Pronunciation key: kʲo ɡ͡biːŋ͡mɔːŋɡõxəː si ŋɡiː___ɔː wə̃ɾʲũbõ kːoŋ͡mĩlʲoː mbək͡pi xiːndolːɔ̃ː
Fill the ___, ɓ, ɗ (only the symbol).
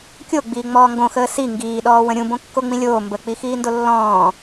ɗ